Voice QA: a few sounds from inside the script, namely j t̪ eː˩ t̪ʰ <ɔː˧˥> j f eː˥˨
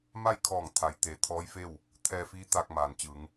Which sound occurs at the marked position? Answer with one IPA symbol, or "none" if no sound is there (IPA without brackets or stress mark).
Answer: ɔː˧˥